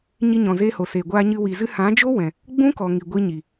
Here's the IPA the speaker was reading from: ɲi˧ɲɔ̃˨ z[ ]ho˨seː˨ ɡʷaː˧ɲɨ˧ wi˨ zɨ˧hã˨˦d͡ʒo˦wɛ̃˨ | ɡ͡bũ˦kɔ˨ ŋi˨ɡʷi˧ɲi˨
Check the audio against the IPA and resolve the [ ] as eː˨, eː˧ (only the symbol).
eː˧